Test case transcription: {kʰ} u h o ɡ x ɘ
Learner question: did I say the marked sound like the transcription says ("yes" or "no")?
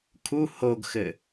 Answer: yes